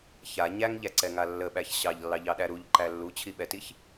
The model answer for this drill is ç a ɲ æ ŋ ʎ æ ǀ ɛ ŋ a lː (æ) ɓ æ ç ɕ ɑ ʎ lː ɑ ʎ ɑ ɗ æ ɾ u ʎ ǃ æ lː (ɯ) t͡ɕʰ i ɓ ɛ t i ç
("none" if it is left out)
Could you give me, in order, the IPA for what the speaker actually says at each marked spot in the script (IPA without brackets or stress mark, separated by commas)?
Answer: ə, u